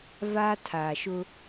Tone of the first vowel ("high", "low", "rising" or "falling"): high